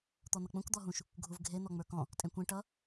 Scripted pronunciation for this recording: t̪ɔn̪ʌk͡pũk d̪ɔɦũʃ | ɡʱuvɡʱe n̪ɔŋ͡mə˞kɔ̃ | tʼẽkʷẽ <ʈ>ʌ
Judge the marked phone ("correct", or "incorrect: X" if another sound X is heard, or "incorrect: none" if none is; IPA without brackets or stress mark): correct